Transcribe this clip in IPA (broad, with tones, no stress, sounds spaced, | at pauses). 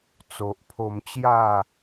t͡s o˨ ʔ pʰ o˧ m t͡ɕ j a˥˧